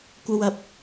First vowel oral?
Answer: yes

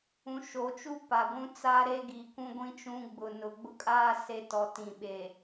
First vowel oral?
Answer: no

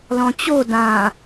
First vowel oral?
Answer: no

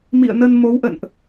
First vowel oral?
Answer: yes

